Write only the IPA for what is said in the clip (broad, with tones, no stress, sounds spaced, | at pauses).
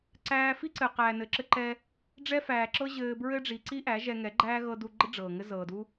ǀ æː˧ f i˦ ǀ ɘ˨ q æː˨ n ɘ˨ ǁ ɘ˧ ǃ ɛ˧ | ɖ͡ʐ ɛ˦ f æː˨ ǁ ɤ˦ ʑ ɘː˧ b ɹ ɘ˦ ɖ͡ʐ i˨ ǀ i˦ ʔ æ˨˦ ʒ ɛ˧ ŋ ɛ˨˦ ɡ͡ǃ æː˦ ɣ ɤ˧ d u˧ ɡ͡ǃ ɘ˦ ɖ͡ʐ ɤː˨ ŋ ɘ˦ z ɤː˨ d u˦